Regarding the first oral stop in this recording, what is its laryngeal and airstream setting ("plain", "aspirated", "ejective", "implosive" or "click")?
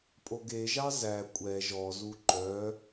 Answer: ejective